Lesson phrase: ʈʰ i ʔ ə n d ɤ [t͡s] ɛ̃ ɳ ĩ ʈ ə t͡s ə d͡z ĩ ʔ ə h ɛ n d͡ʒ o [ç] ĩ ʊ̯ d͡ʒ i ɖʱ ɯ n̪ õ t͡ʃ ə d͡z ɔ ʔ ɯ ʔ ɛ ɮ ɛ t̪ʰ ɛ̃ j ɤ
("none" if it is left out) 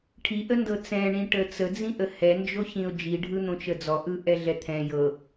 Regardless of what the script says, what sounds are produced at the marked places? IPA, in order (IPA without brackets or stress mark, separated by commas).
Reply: t͡s, ç